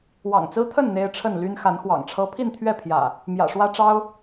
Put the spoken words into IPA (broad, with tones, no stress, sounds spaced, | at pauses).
w ɑ̰˨˩ ŋ t͡s ɹ̩˦ t̪ʰ ə˥˨ n n̪ e˦ ɪ̯ ʈ͡ʂʰ ə˥˨ n l y˦ n x a˨˦ n x w ɑ̰˨˩ ŋ ʈ͡ʂʰ ɤ˦ pʰ i˥˨ n t̪ʰ ɥ ɛ˥˨ pʰ j ä̰˨˩ | m j ä̰˨˩ ʂ w ä˦ ʈ͡ʂ ɑ˦ ʊ̯